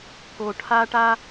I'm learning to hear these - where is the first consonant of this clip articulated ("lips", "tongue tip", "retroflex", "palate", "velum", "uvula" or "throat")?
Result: velum